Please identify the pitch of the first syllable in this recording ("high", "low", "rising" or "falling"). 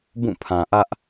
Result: falling